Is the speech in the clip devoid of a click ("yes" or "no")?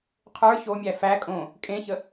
yes